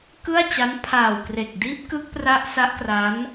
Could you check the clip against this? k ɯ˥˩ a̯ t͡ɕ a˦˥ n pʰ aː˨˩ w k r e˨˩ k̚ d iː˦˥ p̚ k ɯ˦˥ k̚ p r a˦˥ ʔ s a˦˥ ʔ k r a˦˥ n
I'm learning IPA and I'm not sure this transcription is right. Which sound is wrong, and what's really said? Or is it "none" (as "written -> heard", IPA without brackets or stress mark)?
none